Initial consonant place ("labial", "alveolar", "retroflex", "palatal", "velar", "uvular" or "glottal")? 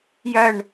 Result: palatal